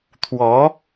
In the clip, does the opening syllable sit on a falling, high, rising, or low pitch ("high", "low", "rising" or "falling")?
rising